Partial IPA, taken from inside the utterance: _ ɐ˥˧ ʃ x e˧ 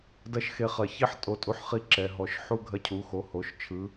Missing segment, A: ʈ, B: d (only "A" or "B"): B